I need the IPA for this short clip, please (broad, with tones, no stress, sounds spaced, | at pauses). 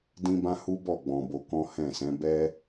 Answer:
d ĩ˦ b ã˦ h u˦ b ɔ˦˨ ɡ͡b ɔ̃˧ b o˦ k ɔ̃˦ h ɛ̃˦˨ s ɛ̃˨˦ b ɛ˦